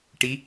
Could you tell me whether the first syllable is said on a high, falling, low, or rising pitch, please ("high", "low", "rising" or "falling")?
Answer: rising